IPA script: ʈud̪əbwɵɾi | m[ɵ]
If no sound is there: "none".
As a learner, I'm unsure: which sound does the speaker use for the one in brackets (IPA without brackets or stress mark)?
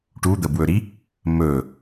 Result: ɵ